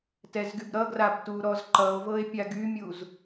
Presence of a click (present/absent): present